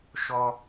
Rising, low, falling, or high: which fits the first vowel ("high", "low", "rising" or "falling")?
high